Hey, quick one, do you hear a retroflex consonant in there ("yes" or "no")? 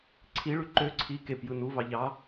yes